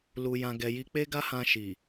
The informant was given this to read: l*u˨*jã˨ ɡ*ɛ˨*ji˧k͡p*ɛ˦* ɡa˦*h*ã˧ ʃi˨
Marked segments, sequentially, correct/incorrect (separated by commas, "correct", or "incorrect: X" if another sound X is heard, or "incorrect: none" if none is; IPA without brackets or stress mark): correct, correct, incorrect: e˦, correct